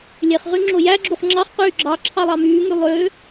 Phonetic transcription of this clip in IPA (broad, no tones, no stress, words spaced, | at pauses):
lʲeχʁy ŋ͡ǁojæɡ͡ǁuχ ŋ͡ǁɑχqyː ɡ͡ǁɑ ǁʰɑlˠɑmyːŋy lˠø